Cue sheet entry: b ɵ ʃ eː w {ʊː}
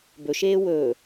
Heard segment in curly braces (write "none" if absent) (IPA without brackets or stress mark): ɵː